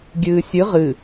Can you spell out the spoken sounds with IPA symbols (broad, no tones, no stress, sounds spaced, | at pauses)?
ɡʲ ɨː sʲ ɨ ʁ ɨ